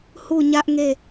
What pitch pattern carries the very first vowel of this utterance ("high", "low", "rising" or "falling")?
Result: falling